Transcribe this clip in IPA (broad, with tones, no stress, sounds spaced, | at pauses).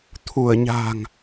t̪ʰ u˧˩ ə̯ ɲ a̤˨˩ ŋ